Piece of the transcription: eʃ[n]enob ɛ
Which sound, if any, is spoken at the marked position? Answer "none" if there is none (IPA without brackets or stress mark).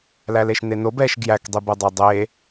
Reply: n